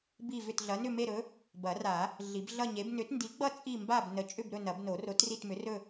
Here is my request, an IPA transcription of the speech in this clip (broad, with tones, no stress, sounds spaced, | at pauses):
b i˥˧ v ʏ˥˧ t ɮ ɐ˨˥ n ʏ˥˧ m e˥˧ ɾ ɵ˨˥ | b ɐ˨˩˦ r a˨˩˦ | ɮ i˨˩˦ b ɮ ʌ˥˧ ɲ e˨˥ b n ʏ˨˥ t n d i˨˥ ɡ͡b ʌ˥˧ t͡sʼ i˥˧ m b a˥˧ b n ə˨˥ t͡ʃʼ ʏ˥˧ b ɾ ɵ˥˧ n ɐ˨˩˦ b n o˨˩˦ r o˨˥ t r i˥˧ t m ʏ˨˥ r ɵ˥˧